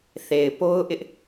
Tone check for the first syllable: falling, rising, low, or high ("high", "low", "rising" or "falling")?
low